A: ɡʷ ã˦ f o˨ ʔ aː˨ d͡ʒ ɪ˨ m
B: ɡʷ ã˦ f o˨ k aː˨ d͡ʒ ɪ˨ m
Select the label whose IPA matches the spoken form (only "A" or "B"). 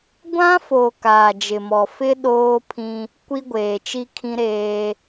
B